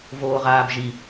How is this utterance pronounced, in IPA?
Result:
voːʁaːbʒi

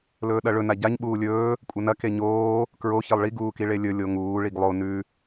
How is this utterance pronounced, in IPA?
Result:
lɵːɗɐɭɵ naɟaɲ ɓuːlʲɵː | kʷʼɐnɐ keɲoː | kɹo çelˠɭi ɡuːkiɭelʲɵ lʲoŋuː ɭiɡlˠo nʉ

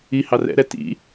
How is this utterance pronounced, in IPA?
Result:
i hɑrɛ̰ɾɛ tḭ

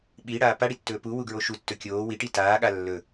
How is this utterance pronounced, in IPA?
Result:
ɓiɽaː paɽitːɵː puwuɡɹo ʃutːɵ kʲoː wiʈi taːɠa lːɵ

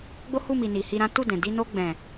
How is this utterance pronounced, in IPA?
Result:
ɡ͡bo˦hu˦˨mi˨ ni˨hi˧ɾã˦ tu˦˨dɛ̃˨ di˧no˧ɡ͡bɛ̃˨

